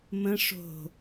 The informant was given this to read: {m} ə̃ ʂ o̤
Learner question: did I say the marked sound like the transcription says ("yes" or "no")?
yes